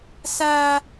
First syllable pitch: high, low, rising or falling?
high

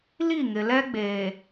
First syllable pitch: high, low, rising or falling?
falling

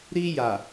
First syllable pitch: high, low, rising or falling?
high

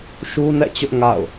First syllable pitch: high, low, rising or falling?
high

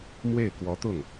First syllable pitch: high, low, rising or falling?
falling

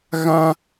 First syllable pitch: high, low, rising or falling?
high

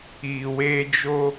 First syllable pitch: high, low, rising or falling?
low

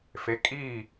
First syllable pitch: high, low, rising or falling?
rising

